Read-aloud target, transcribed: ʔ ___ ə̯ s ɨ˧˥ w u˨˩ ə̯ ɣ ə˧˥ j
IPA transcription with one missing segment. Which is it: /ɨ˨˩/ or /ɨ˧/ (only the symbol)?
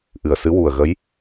ɨ˨˩